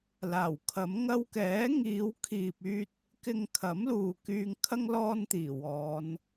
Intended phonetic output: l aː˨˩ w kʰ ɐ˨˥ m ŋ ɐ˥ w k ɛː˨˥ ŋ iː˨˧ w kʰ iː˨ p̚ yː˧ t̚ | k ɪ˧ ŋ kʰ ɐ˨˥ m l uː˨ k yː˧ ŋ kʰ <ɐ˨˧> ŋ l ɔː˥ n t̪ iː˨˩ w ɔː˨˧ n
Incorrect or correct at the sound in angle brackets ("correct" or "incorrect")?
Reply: incorrect